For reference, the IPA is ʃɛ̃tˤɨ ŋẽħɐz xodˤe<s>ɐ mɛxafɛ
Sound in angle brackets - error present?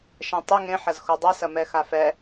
no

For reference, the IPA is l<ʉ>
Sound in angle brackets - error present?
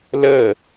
yes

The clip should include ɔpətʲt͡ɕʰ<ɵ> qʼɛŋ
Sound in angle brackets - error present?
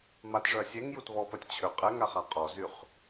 yes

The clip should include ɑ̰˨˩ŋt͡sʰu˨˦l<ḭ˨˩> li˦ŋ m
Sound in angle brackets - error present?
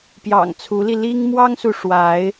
yes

